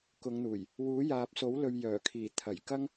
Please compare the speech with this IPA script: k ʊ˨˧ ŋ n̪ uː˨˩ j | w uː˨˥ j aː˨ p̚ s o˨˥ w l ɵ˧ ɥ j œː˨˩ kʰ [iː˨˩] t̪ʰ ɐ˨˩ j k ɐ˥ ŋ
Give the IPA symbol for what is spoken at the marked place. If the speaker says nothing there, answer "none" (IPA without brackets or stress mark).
iː˨˩